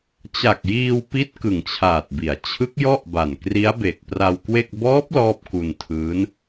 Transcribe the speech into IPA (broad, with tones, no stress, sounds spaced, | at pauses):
t͡ɕ a˨˩ k̚ j iː˧ w p i˦˥ t̚ k ɯ˨˩ ŋ t͡ɕʰ aː˨˩ t̚ b i˩˦ a̯ t͡ɕʰ ɯ˦˥ k̚ j ɔ˥˩ ʔ b a˨˩ n k r i˦˥ a̯ b e˨˩ k̚ p r a˧ w k w e˥˩ k̚ b ɔː˦˥ p̚ l ɔː˥˩ p̚ k u˧ n tʰ ɯː˦˥ n